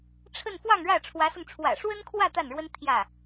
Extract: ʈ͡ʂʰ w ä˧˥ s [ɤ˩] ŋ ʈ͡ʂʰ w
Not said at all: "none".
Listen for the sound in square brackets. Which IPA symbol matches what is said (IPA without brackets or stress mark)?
ɤ˧